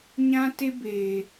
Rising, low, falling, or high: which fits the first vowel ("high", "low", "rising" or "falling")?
high